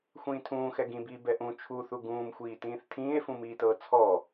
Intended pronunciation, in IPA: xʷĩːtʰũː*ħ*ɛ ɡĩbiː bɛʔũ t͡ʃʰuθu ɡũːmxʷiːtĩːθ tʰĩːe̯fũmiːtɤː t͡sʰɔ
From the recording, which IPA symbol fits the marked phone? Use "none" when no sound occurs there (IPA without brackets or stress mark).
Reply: x